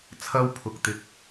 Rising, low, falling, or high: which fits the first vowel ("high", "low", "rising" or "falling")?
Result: high